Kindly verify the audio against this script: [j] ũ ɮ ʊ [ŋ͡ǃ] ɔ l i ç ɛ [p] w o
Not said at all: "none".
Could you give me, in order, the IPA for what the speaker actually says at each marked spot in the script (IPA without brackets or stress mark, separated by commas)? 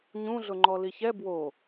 ɲ, ŋ͡ǃ, b